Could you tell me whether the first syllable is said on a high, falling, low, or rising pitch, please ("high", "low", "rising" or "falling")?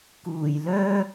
low